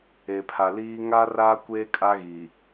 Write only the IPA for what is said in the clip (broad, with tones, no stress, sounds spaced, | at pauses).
e˨ pʰ a˨ l iː˦ ŋ a˦ r aː˦ kʷ eː˦ kʼ a˦ ɣ i˨